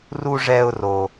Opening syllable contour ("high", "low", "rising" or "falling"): high